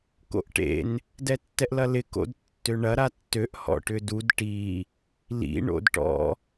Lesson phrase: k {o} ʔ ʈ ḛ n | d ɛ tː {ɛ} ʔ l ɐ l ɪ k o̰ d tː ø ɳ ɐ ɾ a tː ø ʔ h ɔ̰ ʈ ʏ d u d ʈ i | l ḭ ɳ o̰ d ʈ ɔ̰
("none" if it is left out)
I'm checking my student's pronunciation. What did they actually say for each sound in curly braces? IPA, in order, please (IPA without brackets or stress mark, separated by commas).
o̰, ɛ